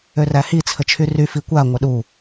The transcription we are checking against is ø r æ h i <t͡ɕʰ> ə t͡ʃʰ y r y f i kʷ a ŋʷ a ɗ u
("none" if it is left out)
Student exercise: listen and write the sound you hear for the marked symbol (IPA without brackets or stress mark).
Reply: t͡sʰ